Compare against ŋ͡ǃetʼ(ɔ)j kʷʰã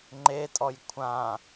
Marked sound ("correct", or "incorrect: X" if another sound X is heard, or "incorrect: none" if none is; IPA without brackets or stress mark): correct